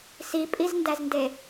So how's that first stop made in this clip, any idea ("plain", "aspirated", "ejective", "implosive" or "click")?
ejective